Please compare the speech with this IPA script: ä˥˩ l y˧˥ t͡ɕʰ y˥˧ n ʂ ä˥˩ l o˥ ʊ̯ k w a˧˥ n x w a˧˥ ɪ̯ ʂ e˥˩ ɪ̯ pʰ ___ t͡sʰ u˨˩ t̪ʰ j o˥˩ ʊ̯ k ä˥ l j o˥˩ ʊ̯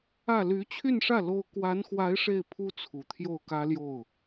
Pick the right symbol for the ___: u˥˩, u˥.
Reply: u˥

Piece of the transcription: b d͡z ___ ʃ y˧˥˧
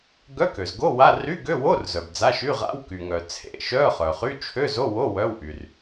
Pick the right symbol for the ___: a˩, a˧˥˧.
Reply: a˧˥˧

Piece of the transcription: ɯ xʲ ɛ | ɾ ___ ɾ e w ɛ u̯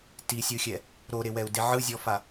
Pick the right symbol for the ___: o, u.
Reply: o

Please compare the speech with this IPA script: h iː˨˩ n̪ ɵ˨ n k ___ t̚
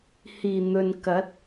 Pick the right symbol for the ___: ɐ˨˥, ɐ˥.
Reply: ɐ˨˥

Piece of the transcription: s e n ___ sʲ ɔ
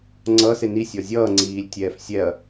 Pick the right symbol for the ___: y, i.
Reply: i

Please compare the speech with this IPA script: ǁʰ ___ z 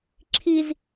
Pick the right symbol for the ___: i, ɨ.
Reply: i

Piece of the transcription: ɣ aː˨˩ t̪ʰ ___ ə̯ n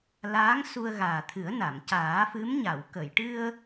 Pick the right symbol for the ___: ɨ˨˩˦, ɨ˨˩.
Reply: ɨ˨˩˦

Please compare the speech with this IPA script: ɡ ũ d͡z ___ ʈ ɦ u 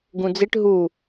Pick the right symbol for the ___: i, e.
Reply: i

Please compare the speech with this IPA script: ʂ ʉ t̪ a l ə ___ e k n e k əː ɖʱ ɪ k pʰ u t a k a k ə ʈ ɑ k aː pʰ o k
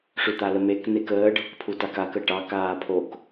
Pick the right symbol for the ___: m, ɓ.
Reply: m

